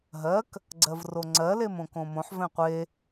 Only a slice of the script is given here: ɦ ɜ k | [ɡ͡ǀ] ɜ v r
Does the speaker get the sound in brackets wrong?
no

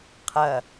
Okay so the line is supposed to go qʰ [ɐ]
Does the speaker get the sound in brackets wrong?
no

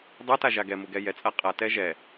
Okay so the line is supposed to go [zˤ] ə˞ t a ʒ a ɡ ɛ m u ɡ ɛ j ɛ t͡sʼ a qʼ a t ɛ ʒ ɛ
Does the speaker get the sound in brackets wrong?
yes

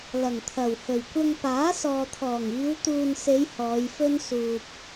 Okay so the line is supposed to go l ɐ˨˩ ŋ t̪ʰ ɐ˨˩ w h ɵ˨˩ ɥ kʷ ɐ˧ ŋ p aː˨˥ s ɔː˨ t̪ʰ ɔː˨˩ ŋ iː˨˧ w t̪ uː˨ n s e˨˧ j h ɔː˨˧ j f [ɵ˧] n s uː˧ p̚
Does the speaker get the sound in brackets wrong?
yes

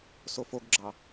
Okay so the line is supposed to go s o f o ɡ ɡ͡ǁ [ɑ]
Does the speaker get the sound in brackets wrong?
no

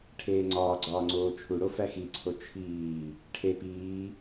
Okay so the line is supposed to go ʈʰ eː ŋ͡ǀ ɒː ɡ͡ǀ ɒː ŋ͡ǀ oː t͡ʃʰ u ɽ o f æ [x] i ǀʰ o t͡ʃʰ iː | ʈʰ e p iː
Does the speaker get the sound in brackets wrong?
no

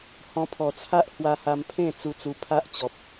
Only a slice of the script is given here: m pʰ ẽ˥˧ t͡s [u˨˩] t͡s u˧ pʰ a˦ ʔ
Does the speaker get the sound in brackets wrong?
yes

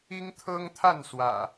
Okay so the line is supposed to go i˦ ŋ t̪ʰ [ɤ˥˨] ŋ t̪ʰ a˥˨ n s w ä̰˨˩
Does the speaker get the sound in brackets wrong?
yes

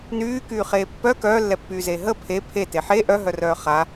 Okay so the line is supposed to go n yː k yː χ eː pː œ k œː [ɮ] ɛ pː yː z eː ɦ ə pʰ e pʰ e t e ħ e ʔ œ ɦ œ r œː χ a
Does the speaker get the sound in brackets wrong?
yes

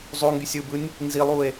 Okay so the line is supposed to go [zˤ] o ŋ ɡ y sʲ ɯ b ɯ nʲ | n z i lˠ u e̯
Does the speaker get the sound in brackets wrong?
no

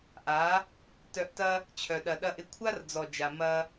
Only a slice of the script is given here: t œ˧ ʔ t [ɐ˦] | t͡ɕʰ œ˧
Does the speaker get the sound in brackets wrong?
no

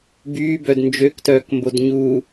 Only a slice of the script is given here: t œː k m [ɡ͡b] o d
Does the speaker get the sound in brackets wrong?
yes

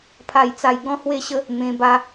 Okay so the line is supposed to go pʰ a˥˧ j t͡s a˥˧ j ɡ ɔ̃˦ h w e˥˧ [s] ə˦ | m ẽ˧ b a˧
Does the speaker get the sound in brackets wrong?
yes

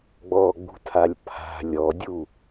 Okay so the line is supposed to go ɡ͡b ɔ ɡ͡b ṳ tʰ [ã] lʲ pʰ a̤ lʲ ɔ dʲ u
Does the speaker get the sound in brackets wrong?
yes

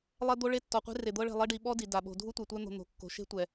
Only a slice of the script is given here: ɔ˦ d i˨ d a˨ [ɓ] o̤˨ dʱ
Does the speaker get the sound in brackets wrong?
no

